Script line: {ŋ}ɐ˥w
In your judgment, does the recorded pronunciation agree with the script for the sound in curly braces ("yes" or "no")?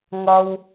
yes